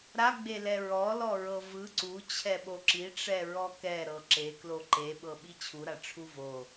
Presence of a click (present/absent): present